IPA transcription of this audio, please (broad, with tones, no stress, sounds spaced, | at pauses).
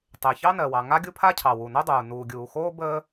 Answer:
tˤ e˩ ç ɑ˥ n ɜ˩ w ɑ˩ ŋ a˥ ɡʲ u˥ pʰ a˥ cʰ ɑ˩ w u˩ n o˥ dˤ uː˩ n uː˩ ɡʲ uː˩ x oː˥ b əː˥